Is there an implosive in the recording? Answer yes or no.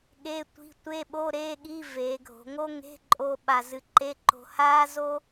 yes